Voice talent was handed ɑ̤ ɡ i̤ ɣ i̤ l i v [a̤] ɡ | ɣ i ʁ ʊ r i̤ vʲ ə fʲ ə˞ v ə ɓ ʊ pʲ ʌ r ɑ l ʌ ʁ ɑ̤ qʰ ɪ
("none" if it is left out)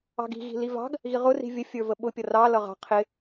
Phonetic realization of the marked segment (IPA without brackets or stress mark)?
ɑ̤